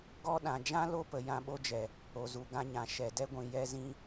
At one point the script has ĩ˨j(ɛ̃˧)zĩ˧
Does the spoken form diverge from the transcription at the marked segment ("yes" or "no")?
yes